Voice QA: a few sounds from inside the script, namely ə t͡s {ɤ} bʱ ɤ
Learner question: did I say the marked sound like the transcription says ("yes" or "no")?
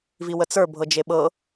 no